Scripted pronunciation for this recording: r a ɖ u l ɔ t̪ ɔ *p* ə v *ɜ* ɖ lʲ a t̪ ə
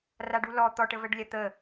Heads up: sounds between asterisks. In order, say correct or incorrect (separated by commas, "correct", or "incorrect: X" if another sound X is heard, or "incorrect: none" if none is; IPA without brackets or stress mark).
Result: incorrect: ʈ, correct